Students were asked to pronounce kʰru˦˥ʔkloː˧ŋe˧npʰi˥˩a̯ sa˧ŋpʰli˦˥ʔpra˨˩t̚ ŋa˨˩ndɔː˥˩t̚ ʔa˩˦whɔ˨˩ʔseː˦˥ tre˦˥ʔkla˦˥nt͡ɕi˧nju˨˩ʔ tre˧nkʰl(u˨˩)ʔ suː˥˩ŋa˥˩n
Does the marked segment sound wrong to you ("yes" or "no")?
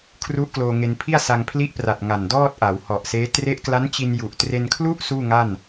yes